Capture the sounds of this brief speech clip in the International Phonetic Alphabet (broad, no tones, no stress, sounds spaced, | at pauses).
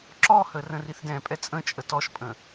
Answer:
ǁ ɔ h ə r ə̃ r i θ d ɛ̃ pʼ ɛ t͡sʼ ə̃ t͡ʃʼ ə t ɔ ʃ pʼ ə̃